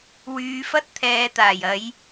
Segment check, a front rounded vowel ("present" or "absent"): present